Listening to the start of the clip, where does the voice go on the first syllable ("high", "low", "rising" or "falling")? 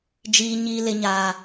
high